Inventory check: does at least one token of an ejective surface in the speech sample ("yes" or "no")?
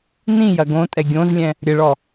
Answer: yes